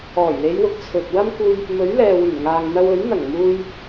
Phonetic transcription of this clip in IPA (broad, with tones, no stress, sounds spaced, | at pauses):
ɔː˨˩ j l e˨˧ j w ʊ˧ k̚ t͡sʰ ɵ˨ t̚ w ɐ˥ m k uː˥ j | m ɵ˨˥ ɥ l ɛː˨ w yː˨˩ n ŋ aː˨ ŋ n̪ ɐ˧ w ɵ˨˥ ɥ n̪ ɐ˨˩ ŋ m uː˧ j